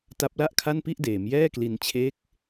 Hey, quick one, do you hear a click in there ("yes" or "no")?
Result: no